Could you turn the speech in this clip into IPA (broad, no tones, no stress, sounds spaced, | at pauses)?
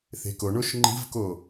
θ e̤ k o ɳ o ʃ ŋ͡ǃ i̤ v k o